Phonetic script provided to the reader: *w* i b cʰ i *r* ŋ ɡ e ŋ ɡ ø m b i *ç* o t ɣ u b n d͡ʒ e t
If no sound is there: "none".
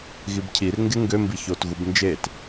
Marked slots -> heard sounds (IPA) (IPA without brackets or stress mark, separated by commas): ɣ, r, ç